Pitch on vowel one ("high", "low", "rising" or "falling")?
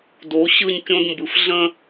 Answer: rising